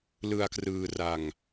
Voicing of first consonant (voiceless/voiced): voiced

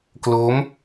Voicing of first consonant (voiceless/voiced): voiceless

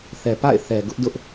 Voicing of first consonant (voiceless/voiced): voiceless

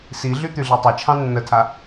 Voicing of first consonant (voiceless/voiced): voiceless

